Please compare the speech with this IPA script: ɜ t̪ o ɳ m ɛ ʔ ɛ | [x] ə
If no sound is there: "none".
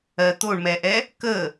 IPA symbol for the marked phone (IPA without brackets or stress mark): k